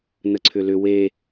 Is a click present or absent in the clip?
present